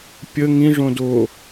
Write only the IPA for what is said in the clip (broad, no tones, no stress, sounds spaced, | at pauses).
pʲ ə ŋ ĩ ʐ õ d o